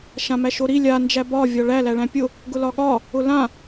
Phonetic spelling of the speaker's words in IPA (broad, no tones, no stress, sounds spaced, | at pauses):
ʃ ã m æ ʃ o ɾ i lʲ a n d͡ʒ æ b ɒ vʲ ɒ ɭ æ l æ ɭ æ̃ pʲ ʊ | ɡ ʊ l ɒ ɠ ɒ | ʊ l ã